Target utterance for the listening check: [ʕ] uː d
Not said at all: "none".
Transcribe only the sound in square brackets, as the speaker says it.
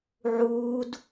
ʕ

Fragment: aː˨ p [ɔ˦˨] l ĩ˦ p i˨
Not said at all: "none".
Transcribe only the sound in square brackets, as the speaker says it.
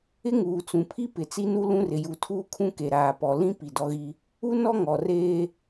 ɔ˨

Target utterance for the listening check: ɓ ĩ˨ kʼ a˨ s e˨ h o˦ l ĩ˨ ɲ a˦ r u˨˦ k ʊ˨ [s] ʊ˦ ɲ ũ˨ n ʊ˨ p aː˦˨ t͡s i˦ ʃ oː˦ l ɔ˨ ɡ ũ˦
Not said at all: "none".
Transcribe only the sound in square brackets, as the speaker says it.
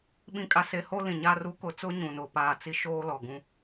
t͡s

